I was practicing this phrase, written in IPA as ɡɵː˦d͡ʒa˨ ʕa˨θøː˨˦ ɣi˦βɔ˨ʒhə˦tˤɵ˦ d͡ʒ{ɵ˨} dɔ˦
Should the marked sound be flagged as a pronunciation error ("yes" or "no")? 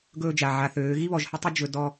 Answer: no